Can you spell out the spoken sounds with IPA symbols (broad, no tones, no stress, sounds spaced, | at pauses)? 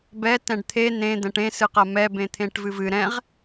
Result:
b ɛ t ɛ̃ ɖ t̪ʰ e n ẽ d̪ ɛ̃ ʈ ẽ s ɨ q ɐ m ɛ b ẽ t̪ʰ ẽ ʈ v ɨ v ɨ ɾ ɛ̃ ʁ